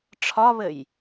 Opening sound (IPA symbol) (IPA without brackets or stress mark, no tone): ʈ͡ʂʰ